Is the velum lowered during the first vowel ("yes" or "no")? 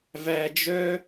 no